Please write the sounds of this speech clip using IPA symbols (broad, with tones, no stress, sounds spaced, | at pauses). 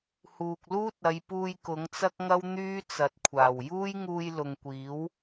h uː˨ k̚ l uː˥ t̚ ɐ˨˧ j p uː˧ j k ʊ˨˥ ŋ t͡s ɐ˥ k̚ ŋ ɐ˥ w n̪ yː˥ t͡s ɐ˨ t̚ kʷʰ aː˨˩ w j uː˥ j ŋ uː˧ j l ʊ˨ ŋ kʷ iː˨˥ w